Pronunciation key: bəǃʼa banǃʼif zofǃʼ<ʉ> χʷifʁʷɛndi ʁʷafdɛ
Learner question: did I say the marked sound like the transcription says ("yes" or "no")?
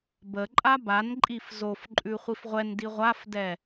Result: yes